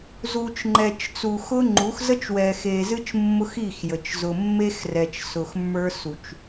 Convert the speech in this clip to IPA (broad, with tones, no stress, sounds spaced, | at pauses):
z u˨ t͡ʃ ŋ͡ǃ ɛ˨ t͡ʃ t͡s u˨ x ʊ˦ ŋ͡ǃ u˨˦ x z ə˦ t͡ʃ w ɛ˨ x e˨ z ɨ˦ t͡ʃ mː ʊ˦ x i˦˨ x j ə˨ t͡ʃ z ʊ˨ mː e˦ x r ɛ˨ t͡ʃ s ʊ˨ x mː ə˞˦ s u˨ t͡ʃ